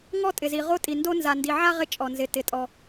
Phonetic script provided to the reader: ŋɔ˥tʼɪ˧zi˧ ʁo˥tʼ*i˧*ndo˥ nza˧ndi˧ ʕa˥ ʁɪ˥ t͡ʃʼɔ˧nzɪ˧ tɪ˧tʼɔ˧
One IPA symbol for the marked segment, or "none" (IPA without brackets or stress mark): i˧